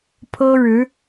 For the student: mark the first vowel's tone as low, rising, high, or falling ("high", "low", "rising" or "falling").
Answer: high